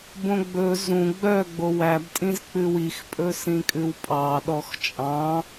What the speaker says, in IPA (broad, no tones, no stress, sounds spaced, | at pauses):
b õ ɡ͡b ɵ z ũ ɡ͡b œ ɡ͡b o w æ b tʼ ĩ z k͡p ʉ w i x pʼ ɵ s ĩ kʼ ʉ w pʼ ɑ ɗ ɔ x t͡ʃʼ ɑ̃